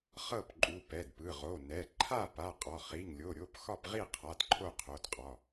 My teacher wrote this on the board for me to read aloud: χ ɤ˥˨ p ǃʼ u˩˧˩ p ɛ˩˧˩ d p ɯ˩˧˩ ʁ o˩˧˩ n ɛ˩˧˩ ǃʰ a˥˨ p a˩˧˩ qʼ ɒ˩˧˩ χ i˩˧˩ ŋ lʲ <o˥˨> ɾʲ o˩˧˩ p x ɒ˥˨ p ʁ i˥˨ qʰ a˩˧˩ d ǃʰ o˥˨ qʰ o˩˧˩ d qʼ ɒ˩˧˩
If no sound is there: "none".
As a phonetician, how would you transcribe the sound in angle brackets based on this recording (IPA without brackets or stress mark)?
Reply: o˩˧˩